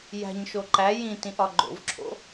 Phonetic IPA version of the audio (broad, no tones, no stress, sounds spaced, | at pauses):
j æ̤ ɲ ʃ o ǃ æ j ĩ t ĩ ʔ ɒ ɡ͡ǃ o̰ v ǁʰ o̰